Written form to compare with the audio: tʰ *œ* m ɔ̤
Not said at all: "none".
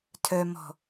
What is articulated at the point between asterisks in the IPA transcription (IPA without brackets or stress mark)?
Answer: œ